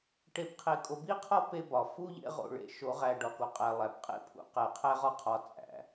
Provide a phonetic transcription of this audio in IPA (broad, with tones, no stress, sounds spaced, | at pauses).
ʈ e˨ b qʰ e˨ kʼ o˨ b i˦ qʰ ɒ˦ p e˦ b ɒ˨ f u˦ ʎ ḛ˦ ʁ o̰˨ ɭ ḛ˨ ʃ o˨˦ ʁ æ˨ ɖ ɒ˨ k o˨ qʼ æ˨ lˠ æ˨ b qʼ ḛ˦ pʰ ṵ˨˦ q æ˨ qʰ æ˦ ʁ ɒ˦ qʰ ɒ˨ t͡sʼ æ̰˨